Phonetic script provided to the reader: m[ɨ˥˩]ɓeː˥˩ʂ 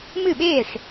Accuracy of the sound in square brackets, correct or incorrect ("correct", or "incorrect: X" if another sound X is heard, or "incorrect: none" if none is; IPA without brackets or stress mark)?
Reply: correct